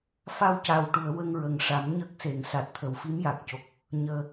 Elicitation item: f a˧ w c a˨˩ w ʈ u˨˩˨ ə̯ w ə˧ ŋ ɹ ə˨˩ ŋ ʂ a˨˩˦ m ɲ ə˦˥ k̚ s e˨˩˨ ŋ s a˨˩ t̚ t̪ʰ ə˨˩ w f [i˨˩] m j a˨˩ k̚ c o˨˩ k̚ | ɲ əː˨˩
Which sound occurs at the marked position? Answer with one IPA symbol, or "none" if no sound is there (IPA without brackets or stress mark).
i˧˥